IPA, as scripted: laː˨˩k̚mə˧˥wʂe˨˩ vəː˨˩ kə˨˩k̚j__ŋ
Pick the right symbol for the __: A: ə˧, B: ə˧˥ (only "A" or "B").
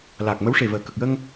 A